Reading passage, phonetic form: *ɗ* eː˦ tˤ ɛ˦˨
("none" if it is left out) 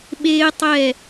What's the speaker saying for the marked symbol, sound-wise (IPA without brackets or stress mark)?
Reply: ɓ